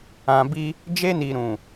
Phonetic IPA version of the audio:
ã˨bi˧ | d͡ʒe˧ni˨ɾũ˨

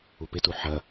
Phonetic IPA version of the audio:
upɪtu ħɐ

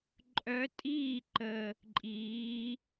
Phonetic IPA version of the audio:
ǃʼœ˧˥tʼiː˥˨ ǃə˨˩ | ǃʼiː˩˧

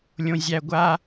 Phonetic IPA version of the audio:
lʲõ˧zʲæ˧ ɡʷa˥

